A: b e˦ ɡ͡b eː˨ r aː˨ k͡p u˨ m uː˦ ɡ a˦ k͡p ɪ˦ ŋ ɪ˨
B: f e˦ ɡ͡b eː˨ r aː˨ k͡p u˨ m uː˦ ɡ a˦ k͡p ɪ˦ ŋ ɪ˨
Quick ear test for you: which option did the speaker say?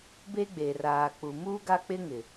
A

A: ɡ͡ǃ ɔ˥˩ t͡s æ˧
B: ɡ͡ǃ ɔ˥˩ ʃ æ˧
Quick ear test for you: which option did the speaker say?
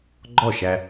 B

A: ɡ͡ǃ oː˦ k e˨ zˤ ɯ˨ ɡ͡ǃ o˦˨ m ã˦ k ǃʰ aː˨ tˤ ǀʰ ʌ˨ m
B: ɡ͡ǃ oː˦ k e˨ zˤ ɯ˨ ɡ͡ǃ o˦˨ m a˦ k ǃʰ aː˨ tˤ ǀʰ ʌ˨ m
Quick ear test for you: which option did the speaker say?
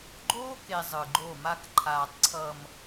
B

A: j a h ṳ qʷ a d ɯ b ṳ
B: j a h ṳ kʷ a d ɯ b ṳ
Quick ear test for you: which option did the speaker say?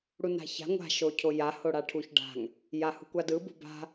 B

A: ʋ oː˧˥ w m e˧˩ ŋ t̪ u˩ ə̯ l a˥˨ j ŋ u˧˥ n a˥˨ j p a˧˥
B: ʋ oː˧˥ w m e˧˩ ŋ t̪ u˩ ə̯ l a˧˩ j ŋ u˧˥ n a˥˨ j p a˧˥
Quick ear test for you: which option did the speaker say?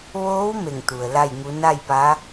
A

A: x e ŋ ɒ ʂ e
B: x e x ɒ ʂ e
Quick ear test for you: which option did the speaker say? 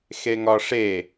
A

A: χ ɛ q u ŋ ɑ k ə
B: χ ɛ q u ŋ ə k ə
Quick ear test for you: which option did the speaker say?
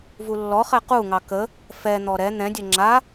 A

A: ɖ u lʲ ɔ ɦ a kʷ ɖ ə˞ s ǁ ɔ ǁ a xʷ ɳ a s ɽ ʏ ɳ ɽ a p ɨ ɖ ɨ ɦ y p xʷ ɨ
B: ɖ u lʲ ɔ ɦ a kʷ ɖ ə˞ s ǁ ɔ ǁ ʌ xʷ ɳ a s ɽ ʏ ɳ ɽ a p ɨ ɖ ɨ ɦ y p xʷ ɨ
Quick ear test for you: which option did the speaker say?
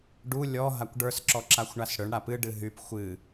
A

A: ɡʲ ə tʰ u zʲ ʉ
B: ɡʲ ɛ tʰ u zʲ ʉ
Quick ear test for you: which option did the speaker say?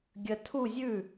A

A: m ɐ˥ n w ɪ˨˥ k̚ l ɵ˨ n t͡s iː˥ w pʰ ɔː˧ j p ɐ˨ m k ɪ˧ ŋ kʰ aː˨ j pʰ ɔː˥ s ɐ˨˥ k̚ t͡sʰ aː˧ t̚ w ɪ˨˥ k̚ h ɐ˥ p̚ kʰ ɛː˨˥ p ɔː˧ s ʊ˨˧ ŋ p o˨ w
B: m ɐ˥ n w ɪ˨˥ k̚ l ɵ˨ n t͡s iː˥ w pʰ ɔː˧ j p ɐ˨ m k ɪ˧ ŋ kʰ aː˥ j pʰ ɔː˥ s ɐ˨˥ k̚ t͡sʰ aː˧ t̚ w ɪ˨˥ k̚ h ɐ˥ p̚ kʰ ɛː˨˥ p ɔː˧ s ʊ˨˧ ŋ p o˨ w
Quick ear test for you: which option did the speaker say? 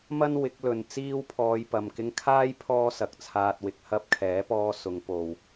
B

